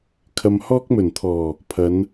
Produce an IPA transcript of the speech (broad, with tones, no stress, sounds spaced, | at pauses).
kʰ ɐ˧ m h ɔː˥ k̚ m ɵ˨˩ n t̪ʰ ɔː˨˩ | pʰ ɐ˨˧ n